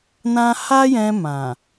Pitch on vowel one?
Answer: high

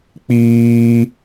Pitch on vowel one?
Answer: high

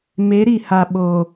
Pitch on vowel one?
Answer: rising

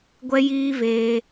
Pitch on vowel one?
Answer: high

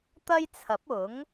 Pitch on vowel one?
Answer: high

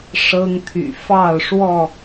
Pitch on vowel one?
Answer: high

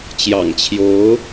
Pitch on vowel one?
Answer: low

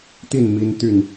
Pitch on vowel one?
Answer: falling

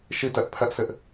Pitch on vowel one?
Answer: falling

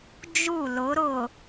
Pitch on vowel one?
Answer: falling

